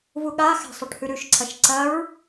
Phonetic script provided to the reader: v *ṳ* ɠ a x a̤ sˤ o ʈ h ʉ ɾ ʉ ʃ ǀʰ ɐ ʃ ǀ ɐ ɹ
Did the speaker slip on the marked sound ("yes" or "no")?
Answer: yes